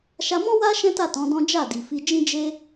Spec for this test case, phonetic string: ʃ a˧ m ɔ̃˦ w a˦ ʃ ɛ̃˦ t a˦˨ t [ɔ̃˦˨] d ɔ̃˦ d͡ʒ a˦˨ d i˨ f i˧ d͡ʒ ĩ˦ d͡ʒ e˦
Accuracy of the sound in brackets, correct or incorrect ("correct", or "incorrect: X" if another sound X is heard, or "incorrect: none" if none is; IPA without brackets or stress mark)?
incorrect: ɔ̃˨˦